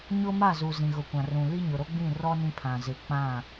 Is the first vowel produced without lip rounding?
no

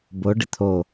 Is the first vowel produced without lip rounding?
no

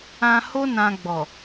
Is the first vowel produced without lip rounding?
yes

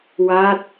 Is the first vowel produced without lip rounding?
yes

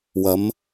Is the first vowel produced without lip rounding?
yes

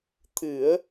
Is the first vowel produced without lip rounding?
yes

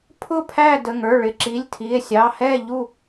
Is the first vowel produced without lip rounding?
no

